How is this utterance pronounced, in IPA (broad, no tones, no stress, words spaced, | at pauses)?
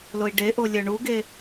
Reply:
loi̯ɖeʔo lʲœɳuɡe